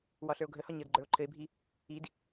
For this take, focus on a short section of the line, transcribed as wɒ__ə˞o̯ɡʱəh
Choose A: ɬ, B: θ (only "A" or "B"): A